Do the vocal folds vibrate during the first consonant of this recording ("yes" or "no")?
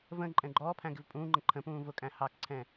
yes